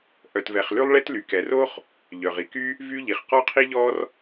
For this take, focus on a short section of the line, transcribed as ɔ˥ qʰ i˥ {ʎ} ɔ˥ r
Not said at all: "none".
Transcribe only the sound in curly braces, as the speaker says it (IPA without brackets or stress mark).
ʎ